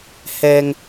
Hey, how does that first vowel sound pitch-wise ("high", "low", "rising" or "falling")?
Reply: low